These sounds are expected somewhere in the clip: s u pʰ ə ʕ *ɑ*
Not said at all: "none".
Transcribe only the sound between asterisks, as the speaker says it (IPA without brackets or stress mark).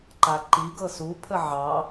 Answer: ɑ